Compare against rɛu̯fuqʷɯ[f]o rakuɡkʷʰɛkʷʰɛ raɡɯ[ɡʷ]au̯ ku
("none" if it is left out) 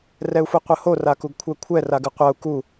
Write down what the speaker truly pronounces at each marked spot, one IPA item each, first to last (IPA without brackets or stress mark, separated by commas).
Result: h, qʷ